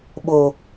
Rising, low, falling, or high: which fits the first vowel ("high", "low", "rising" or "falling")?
low